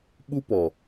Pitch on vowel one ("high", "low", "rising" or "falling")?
high